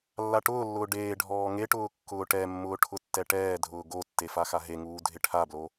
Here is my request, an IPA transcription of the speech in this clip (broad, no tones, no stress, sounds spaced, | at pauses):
lː a ʈ ʊː lː ʊː ɖ eː ɖʱ ɔː ŋ e ʈ ʊː kː ʊː ʈ ɛ mː ʊː ʈʰ ʊ tː ɛ ʈ ɛː dʱ ʊː ɡ o tː e f a x a ɦ e ŋ uː dʱ ɪ ʈʰ a b l o